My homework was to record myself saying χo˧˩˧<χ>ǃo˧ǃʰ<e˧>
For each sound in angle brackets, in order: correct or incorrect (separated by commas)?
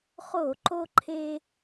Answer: incorrect, correct